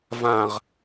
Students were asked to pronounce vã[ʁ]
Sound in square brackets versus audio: correct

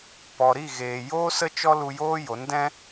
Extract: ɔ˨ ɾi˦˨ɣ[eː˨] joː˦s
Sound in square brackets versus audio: correct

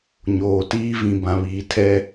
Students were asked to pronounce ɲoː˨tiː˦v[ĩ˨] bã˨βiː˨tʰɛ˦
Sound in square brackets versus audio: correct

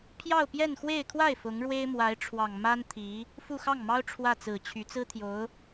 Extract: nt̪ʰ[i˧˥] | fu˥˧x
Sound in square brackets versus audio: correct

